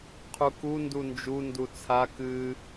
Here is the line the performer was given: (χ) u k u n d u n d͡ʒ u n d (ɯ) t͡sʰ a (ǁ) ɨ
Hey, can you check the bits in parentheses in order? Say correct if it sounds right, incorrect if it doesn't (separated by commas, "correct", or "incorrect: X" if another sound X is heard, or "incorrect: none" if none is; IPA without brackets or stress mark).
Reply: incorrect: qʰ, incorrect: u, incorrect: k